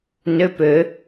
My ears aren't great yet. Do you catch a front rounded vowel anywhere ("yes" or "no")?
yes